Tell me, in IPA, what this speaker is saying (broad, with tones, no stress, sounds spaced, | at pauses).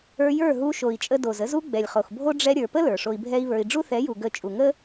ə˞˧ j ə˞˦˨ ɦ u˧ ʃ o˨ i̯ t͡ʃʼ ə˧ d o˨ z ə˦ z u˦ ɡ͡b ɛ˨ lʲ χ o˨ x bʱ o˦ ɖ͡ʐ ɛ˧ ɾʲ ə˞˨ p ə˦ l ə˞˨ ʂ o˧ i̯ bʱ ɛ˦ i̯ β ə˞˧ i̯ ɖ͡ʐ u˦ θ ɛ˨˦ j u˨ ɡ ə˦˨ t͡ʃʼ u˨ ŋ ə˦